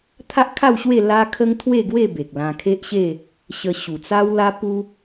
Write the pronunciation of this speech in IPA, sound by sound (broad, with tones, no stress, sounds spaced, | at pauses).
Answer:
t̪ʰ a˦ ʔ kʰ a˥˧ w ɕ w e˥˧ l a˦ kʰ ə˦ ŋ t̪ʰ w e˥˧ ɡ w e˥˧ b e˨ k̚ l ã˧ kʰ e˦ ʔ ɕ e˥˧ | ɕ ə˧ ɕ u˨˩ t͡s a˦ w l a˦ p u˦